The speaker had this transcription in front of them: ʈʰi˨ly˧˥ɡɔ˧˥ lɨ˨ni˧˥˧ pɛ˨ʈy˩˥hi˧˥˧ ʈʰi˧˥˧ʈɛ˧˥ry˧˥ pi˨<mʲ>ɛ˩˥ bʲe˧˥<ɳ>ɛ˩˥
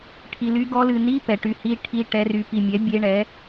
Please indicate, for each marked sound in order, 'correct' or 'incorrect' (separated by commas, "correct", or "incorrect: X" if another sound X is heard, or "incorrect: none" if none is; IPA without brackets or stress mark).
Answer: correct, correct